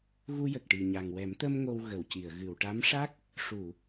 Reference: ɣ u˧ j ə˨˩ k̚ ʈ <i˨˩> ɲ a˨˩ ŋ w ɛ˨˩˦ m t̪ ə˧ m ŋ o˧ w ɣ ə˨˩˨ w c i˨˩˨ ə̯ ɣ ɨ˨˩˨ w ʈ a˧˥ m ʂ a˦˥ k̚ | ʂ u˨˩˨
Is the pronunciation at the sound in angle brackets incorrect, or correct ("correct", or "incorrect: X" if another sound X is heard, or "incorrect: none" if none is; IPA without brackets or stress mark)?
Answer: correct